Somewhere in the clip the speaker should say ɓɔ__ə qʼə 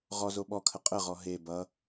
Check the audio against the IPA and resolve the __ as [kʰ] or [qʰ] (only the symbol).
kʰ